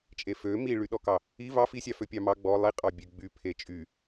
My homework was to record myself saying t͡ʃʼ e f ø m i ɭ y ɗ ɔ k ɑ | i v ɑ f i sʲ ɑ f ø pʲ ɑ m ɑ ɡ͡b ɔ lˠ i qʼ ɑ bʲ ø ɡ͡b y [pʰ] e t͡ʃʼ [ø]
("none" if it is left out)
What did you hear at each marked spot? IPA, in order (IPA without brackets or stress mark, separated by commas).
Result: pʰ, y